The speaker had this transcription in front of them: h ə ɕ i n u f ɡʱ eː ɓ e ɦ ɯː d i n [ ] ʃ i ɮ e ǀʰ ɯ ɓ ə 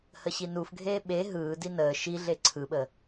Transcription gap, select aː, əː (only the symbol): əː